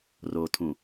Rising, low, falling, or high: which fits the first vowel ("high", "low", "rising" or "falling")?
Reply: low